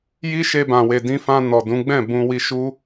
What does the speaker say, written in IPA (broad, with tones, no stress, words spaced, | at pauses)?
ji˦ʃe˧bã˨ we˨dĩ˧fã˧ nɔ˨dũ˨˦ ɡ͡bɛ̃˦˨ bũ˧ wi˧ʃu˦